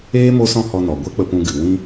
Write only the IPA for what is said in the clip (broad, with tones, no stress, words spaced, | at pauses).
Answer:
eː˦ mo˦sɔ̃˦hɔ˧nɔ˨ ɡʷɛ˦k͡pə˧pũ˧ ɡɨ˨ wĩ˦